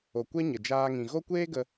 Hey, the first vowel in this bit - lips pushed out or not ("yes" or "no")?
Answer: yes